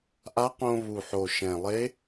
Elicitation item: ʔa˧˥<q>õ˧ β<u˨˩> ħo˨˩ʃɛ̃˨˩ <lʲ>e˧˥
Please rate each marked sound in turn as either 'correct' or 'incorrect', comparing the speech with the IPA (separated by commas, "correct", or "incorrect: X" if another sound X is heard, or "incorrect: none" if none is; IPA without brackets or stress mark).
correct, correct, incorrect: lˠ